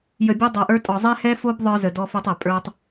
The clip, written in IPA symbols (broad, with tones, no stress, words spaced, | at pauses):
jə˨bʲo˦ dˤo˨ʔə˞˦tʼɔ˨ zˤɛ˦hɛ˦fo˦b ðˤə˞˦zə˨ dɔ˦fo˦tˤɛ˨ pʼə˞˦tˤ